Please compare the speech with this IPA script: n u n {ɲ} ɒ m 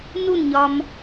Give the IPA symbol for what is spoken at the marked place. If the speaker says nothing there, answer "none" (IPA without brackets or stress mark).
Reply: ɲ